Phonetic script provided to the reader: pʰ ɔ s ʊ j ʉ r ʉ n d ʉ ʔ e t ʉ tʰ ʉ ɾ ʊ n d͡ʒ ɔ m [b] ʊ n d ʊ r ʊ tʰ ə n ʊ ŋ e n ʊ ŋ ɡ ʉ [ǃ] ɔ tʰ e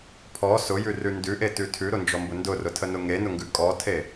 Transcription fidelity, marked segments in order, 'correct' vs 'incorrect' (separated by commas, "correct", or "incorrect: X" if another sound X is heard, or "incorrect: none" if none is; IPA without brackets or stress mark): correct, incorrect: kʼ